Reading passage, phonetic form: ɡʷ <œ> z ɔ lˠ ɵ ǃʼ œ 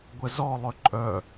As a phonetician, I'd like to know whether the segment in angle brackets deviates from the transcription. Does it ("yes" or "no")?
yes